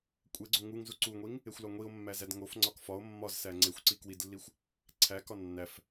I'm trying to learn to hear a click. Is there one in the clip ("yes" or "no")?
yes